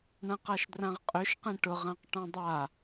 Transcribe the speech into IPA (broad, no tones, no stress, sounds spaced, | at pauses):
ɳ ɐ̃ q a ʃ d r ã ʁ qʼ ø ʃ q ẽ ʈ ʊ ʁ ã q ʈ ɔ̃ dˤ a